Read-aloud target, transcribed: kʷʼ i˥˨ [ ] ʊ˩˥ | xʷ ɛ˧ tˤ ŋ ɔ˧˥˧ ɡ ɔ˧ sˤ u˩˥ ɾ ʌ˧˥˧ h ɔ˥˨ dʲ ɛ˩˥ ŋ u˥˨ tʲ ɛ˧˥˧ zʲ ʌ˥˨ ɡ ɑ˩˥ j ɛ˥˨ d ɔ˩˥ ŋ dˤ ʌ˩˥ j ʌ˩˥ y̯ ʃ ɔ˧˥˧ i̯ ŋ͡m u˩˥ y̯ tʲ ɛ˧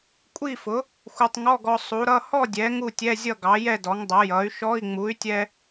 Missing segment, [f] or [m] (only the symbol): f